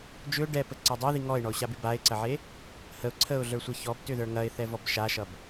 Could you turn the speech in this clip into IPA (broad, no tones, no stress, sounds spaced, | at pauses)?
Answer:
d͡ʒ ʏ ʊ̯ ɖ ɛ p ə ǀ ɐ dˤ ɐ ð i ŋ ɔ ɪ̯ ɳ ɔ ʊ̯ ɕ a b i b a ɪ̯ ǀ ɐ ʕ e | h ə ʊ̯ ǀʰ ə ʊ̯ ɮ ə˞ sʷ e ç ɔ b t ʏ ð ə˞ ŋ ɐ ɪ̯ θ ɛ v ɔ b ʃ a ʃ ʌ b